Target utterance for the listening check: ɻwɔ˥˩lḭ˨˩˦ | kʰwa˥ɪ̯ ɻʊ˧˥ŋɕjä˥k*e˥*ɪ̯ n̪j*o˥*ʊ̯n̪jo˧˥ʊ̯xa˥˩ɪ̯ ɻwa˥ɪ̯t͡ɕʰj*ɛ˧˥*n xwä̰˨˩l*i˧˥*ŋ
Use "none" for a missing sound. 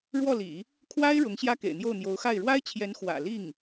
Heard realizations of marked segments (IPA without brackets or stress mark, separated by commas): ḛ˨˩, o˥˩, ɛ˧˥, i˥˩